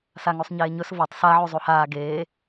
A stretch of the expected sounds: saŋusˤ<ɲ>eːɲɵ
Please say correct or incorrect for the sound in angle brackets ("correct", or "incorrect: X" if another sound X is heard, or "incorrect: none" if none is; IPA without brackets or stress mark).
correct